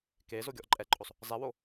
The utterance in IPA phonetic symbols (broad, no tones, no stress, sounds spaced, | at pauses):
k e z o ɡʲ ɔ ʔ ǃʼ ɛ ǃʼ o sˤ | zˤ ɛ w o